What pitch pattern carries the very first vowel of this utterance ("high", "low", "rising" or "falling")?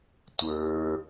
low